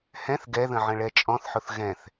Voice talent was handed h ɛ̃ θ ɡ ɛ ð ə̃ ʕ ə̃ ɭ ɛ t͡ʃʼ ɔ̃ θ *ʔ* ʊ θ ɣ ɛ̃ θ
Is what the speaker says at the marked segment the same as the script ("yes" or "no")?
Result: no